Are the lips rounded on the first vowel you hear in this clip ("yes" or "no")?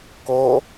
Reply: yes